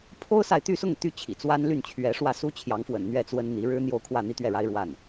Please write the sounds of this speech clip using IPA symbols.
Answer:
pʰ o˥ ʊ̯ s a˨ ɪ̯ t̪ y˥˧ s ʊ˥˩ ŋ t̪ y˥ t͡ɕʰ ḭ˨˩ t͡s w a˥ n l y˥˩ n t͡ɕʰ ɥ ɛ˧˥ ʂ w ä˥˩ s u˥ t͡ɕʰ j ɑ˧˥ ŋ f w ə̰˨˩ n n̪ ɥ ɛ˥˩ t͡s w ə˥ n n̪ i˧˥ ɻ ɻ̩˥ n̪ j o˥˧ ʊ̯ kʰ w ä˥˧ n̪ i˥˧ t̪ ɥ ɛ˥˩ ɻ a˥ ɪ̯ ɻ w a˥˩ n

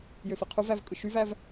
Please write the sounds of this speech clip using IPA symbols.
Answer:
j ø f i qʰ u v æ v kʼ ɯ ʃ y v æ v

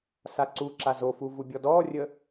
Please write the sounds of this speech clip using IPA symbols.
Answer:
s a ǀ u ǁ a z o f u v u bʲ ɔ d ɔː rʲ ə

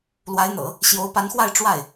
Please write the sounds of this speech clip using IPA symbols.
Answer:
l w a˧˥ ɪ̯ n̪ ɤ̰˨˩˦ | ɕ j o˧˥ ʊ̯ p a˧˥ n x w a˥˧ ɪ̯ ʈ͡ʂ w a˥˩ ɪ̯

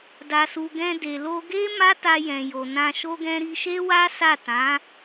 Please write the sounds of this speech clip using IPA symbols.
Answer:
d a˨ s u˨ ɡ ɛ̃˧ d e˨ l o˧ ɡ e˦ m a˦ t a˧ j ɛ̃˨ j o˨ n ã˧ ʃ o˦ ɡ ɛ̃˦ ɾ i˧ ʃ e˦ w a˦ s a˦˨ t ã˨˦

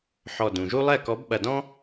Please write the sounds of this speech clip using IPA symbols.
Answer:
ħ ɔ˧˩ d ũ˩ ʒ u˥ lˠ ɛ˥˩ k ɔ˨˥ b ɓ ɐ˧˩ d ɔ̃˥

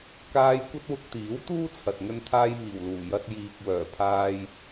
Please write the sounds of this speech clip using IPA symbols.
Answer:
k aː˧ j kʷ ɐ˥ t̚ w ʊ˧ k̚ t̪ iː˨˥ w t̪ uː˥ t͡sʰ ɐ˨ t̚ ŋ ɵ˧ n t̪ʰ aː˧ j m iː˨˩ w l uː˨˩ j ɐ˧ t̚ j iː˨ k̚ w œː˨˩ pʰ aː˧ j

